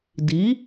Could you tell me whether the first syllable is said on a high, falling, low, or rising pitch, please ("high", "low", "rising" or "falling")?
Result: rising